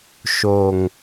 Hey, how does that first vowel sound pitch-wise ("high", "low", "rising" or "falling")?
low